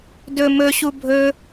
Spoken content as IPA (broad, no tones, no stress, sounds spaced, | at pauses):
d ɵ m ɵ ɕ u bʱ ɵ